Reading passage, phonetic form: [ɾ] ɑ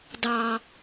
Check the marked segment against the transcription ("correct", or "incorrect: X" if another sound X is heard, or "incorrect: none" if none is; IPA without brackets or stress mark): incorrect: d